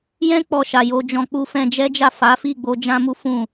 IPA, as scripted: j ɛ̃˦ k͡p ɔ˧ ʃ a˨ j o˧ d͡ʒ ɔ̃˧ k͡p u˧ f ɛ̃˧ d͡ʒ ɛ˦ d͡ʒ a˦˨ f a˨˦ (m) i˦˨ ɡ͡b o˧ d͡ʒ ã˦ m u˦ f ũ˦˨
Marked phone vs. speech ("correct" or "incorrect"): incorrect